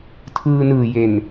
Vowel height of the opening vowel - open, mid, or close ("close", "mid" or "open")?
close